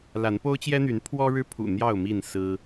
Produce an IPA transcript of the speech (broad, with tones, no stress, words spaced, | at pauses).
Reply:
la˨˦npo˦ʊ̯t͡ɕjɛ˦n̪y˨˦n pʰwɔ˦ɻɻ̩˦pʰṵ˨˩ n̪jɑ˥˨ʊ̯mi˥˨n sɹ̩˦